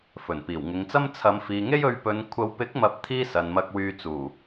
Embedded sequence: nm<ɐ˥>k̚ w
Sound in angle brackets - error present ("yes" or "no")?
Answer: yes